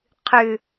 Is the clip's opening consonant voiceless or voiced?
voiceless